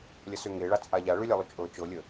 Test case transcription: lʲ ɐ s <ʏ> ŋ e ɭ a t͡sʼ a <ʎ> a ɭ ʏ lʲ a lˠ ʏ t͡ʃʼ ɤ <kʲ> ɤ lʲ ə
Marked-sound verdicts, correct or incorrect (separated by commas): correct, correct, incorrect